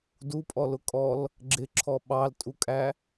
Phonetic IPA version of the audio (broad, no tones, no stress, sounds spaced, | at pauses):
d u pʼ ɔ l ʊ kʼ ɔ l | ɡ͡ǁ ɪ ǁʰ ɔ ɓ ɑ l tʼ u kʼ æ